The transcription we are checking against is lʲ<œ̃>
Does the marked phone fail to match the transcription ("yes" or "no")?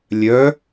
yes